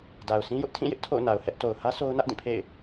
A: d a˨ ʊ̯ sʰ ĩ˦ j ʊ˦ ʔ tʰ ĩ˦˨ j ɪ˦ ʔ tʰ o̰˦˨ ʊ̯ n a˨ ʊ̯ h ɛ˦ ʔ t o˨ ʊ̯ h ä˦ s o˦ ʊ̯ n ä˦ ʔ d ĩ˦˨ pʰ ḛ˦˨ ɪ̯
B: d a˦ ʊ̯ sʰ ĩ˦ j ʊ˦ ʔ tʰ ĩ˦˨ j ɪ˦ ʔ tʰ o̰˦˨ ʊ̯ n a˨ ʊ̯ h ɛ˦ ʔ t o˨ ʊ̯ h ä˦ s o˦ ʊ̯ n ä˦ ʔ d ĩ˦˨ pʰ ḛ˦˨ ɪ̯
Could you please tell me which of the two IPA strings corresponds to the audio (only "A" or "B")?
A